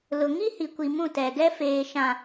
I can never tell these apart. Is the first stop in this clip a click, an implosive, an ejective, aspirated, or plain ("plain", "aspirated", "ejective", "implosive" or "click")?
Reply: plain